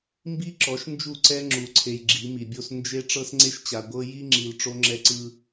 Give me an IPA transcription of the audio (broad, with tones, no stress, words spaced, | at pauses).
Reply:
mbi˦ǁɔ˨˦ʃ nd͡ʒu˦˨ǀɛ˦ ŋ͡ǁu˨ǀʰe˨j ɡ͡ǁi˨˦mi˨bʲo˦s nd͡ʒe˦ ʈ͡ʂɤ˦sŋ͡ǀe˦ʃt͡ɕa˨ ɡʷɤ˦ ji˦ŋ͡ǁi˨l ʈ͡ʂo˦ŋ͡ǁɛ˦ǀɯ˦